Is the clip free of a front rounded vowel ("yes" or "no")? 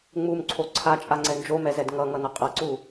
yes